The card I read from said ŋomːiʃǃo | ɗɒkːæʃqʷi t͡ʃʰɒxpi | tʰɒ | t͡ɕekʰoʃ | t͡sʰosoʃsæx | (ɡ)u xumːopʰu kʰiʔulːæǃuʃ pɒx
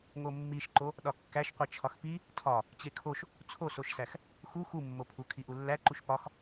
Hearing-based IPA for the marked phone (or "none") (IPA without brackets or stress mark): x